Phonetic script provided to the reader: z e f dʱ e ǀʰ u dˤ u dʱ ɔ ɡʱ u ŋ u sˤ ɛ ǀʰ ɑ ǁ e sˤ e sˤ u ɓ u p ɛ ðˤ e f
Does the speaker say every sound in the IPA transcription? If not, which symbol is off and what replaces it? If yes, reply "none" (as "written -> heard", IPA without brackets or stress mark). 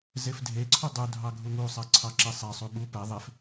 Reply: ɔ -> ɑ